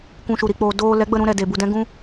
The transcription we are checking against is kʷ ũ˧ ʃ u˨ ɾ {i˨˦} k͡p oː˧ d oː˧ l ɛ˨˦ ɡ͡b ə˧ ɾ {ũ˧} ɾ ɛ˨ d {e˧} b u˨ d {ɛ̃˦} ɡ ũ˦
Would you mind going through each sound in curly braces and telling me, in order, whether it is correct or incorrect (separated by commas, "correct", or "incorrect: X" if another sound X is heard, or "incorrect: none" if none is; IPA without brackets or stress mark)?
incorrect: i˨, correct, incorrect: e˨, correct